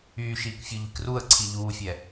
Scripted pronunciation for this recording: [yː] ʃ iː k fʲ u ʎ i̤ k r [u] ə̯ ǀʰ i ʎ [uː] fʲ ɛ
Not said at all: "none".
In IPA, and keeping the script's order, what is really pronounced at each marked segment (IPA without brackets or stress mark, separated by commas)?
yː, u, uː